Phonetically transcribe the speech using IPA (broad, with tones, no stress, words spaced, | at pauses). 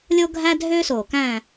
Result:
lʲo˦ɡʱæ˦dʱø˦ so˨˩kæ̃˦˨